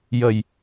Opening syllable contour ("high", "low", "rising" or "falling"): low